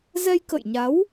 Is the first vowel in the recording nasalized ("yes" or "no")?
no